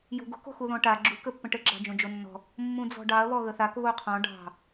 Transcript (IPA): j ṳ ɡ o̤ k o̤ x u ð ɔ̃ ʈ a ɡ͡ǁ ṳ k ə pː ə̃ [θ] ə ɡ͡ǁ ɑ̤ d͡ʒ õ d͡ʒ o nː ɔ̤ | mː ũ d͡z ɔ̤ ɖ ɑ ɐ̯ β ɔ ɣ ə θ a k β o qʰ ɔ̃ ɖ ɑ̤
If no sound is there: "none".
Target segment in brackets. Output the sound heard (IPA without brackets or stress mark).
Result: ʈ